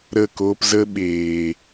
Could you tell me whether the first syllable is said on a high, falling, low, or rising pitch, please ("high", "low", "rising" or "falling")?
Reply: falling